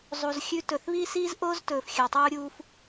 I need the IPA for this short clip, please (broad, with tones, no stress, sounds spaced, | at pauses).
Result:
zˤ u˨ z xʲ ʉ˧ t ɵ˨ θ β i˦ s iː˦ z ʔ oː˦ z t ɵː˨ f xʲ ɵ˨ tˤ uː˧ ɾʲ uː˧ f